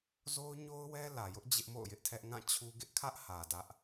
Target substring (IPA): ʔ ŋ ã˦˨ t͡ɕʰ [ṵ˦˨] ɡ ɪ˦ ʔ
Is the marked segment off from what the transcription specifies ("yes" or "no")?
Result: yes